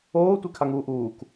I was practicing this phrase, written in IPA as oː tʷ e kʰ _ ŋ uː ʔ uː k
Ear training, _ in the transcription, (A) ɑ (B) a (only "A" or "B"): B